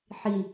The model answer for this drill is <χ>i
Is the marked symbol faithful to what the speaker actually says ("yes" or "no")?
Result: no